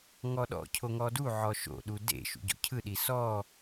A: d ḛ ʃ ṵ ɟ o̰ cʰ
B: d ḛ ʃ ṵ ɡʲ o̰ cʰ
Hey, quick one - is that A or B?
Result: A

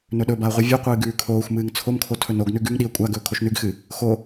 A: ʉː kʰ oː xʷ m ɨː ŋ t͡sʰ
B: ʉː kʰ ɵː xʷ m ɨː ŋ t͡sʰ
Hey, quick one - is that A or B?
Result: A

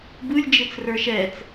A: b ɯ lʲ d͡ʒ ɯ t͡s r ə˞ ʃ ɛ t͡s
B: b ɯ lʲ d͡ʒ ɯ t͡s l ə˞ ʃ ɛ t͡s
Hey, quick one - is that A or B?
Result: A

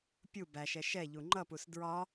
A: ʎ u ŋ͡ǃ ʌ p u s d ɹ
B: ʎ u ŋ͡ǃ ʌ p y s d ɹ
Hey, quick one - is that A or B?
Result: A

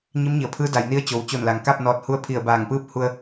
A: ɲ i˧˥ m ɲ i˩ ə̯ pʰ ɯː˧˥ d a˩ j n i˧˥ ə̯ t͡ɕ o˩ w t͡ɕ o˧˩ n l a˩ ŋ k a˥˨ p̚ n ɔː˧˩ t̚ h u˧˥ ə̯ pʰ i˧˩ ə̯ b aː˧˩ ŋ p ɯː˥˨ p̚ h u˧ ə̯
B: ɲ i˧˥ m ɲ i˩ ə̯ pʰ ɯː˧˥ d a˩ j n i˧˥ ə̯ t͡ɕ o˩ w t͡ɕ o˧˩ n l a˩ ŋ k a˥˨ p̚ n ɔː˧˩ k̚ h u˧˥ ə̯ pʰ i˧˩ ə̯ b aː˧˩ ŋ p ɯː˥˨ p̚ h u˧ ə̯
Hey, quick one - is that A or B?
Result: A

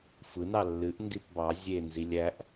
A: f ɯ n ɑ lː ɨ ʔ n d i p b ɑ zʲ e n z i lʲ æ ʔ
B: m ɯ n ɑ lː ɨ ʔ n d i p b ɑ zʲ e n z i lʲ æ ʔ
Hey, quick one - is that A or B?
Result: A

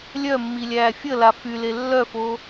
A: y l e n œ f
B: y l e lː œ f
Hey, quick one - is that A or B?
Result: B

